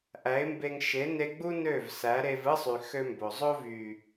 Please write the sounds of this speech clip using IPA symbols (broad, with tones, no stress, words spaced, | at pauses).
ʔæ˨˦ɪ̯mbe˧ŋ ʃe˨˦ne˧ ɡ͡bu˦ nø˦˨v sæ˨˦ɾe˧vɯ˦sˤy˨ xø˧mbo˨zˤo˦ vy˨